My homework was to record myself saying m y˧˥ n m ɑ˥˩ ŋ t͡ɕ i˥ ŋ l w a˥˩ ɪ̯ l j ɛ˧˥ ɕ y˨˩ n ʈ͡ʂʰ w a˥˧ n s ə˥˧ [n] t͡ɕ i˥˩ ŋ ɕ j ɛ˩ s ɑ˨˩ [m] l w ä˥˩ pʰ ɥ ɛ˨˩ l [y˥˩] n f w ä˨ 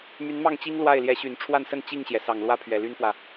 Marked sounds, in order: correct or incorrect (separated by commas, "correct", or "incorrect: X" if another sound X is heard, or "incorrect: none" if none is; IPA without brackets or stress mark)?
correct, incorrect: ŋ, incorrect: y˥